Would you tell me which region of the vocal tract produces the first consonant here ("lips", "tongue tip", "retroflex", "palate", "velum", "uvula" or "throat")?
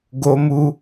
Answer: velum